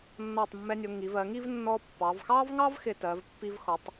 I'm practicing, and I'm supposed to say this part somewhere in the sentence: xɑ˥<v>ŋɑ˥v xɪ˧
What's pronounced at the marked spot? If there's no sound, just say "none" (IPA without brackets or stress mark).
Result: v